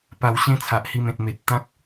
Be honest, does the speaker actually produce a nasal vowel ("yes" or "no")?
yes